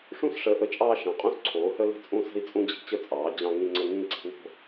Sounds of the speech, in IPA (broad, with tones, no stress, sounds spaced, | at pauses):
ʂ ũ˦ s ʂ əː˨˦ ʔ ə˨˦ t͡ʃʼ ɑː˦ ʃ ɑ̃˨˦ qʼ ũ˦ s ǀʰ oː˨˦ h ə˦ l ə̤˦ t͡sʼ ũ˦ s ə̤˦ i̯ t͡sʼ ũ˦ d͡ʑ i̤˨˦ t͡ɕ ə˦ t͡sʼ ɑː˨˦ d͡ʑ ɑ̃˦ ŋ ĩ˦ ŋ͡ǀ ə˦ ŋ ĩː˦ ǀ i̤˦ w o̤˦